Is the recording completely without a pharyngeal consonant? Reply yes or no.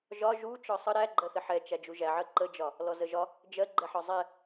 no